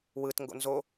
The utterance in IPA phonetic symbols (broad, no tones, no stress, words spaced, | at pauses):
wɯtŋɡo̰ nzo